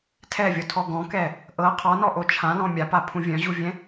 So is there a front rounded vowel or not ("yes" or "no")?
yes